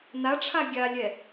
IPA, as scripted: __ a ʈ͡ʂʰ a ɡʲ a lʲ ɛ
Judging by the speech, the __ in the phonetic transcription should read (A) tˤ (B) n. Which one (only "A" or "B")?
B